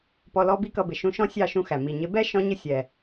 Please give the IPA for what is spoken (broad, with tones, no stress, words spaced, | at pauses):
pɔ˧lɔ˦ bi˦kʌ˧bɪ˨ ʃũ˧ʃɔ̃˦ sʲɑ˦˨ʃũ˧ xæ˨mi˨ ɲɪ˨˦bɛ˦ ʃɔ̃˦ ɲɪ˦sʲɛ˨